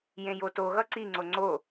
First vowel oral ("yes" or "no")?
no